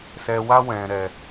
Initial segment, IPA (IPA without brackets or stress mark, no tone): s